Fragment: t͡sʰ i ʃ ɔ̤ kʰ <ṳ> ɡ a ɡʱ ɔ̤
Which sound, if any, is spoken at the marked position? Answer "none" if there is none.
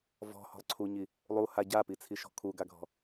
u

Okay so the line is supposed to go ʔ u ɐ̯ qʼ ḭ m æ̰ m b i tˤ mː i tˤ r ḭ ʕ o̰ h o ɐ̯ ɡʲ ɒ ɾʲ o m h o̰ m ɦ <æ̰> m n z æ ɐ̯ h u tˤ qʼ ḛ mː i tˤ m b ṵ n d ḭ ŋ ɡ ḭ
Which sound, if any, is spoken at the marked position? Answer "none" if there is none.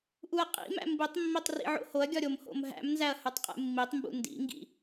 æ̰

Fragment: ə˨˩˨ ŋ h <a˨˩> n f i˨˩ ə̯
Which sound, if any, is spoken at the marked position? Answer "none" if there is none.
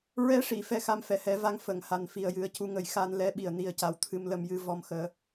a˨˩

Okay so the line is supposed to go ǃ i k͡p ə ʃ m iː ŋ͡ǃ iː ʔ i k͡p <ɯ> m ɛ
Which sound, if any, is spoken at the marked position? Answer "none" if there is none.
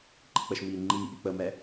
ə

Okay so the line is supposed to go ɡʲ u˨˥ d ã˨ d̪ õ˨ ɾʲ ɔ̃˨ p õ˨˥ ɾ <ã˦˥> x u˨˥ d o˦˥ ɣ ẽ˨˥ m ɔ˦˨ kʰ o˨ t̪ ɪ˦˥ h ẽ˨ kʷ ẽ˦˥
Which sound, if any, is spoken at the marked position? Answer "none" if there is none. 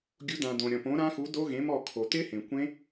ã˦˥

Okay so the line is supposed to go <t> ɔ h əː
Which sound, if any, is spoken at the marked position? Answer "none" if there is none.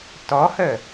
t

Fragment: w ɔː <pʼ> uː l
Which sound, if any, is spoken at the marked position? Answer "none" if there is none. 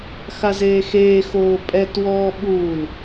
ɓ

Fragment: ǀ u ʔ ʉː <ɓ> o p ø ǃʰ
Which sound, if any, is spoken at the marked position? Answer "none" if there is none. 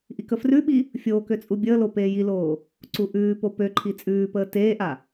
p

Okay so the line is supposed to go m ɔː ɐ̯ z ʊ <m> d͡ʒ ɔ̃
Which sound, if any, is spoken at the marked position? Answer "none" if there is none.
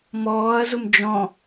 m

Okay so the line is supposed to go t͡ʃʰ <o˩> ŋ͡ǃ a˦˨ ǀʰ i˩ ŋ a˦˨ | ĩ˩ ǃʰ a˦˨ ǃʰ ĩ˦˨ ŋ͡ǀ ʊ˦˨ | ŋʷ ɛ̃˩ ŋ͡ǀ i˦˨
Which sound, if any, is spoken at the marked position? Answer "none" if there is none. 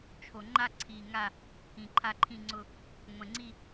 o˩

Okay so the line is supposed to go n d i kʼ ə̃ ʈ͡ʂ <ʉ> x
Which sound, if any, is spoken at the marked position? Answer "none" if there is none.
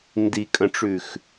ʉ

